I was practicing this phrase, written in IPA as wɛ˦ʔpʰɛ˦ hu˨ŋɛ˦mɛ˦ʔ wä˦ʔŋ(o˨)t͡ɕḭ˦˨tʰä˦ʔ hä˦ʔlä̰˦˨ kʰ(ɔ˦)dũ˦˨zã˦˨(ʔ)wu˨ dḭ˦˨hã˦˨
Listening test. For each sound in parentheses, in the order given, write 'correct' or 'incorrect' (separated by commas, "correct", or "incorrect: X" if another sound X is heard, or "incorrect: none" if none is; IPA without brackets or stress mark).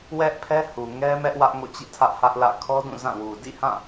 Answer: incorrect: o̰˦˨, correct, incorrect: none